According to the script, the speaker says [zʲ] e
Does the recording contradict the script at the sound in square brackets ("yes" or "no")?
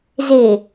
yes